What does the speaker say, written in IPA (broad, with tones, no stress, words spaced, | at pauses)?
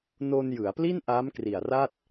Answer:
no˧n jɯ˩˦a̯pli˥˩n ʔaː˦˥mkri˨˩a̯ra˥˩t̚